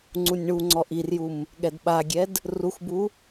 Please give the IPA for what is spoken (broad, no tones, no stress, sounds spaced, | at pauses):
ŋ͡ǀ u nʲ ɳ u ŋ͡ǀ ɔ ʔ i r j u m | ɠ ɛ d ɓ a ɡʲ ɛ d | r u x b u